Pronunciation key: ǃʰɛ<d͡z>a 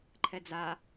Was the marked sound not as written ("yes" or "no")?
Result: no